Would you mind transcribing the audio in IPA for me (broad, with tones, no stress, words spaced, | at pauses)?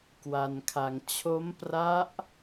kwa˧nkʰa˧ŋ t͡ɕʰo˦˥mpra˦˥ʔ